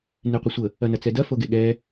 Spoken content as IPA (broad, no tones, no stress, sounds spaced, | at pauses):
n e qʷ ɐ sʷ ə | ɐ n ɐ t͡s ɛ d ɐ f o ɡ e ɠ ɛ